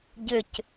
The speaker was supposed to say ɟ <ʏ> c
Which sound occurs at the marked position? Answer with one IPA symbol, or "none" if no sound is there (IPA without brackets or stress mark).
ʏ